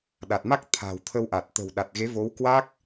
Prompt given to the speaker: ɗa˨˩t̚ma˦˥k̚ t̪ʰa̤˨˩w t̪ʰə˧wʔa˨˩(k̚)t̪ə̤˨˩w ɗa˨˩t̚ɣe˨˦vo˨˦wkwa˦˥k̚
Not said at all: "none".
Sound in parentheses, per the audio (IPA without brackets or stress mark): t̚